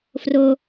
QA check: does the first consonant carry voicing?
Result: no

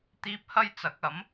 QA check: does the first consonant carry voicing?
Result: no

